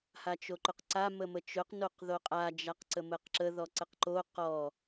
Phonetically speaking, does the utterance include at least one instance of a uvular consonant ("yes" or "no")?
yes